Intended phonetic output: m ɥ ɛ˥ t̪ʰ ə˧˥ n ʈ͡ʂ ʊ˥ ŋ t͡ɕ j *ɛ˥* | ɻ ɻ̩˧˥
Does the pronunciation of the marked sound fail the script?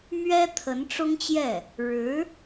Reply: yes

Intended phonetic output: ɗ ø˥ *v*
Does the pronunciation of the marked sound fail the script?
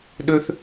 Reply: yes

